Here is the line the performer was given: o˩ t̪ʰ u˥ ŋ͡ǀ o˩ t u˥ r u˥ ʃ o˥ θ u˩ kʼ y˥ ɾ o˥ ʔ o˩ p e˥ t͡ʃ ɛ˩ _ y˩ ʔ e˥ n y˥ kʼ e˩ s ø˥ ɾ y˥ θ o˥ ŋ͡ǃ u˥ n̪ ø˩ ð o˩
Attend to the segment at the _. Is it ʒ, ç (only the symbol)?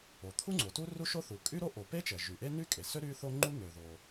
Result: ʒ